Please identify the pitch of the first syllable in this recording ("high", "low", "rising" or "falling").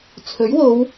rising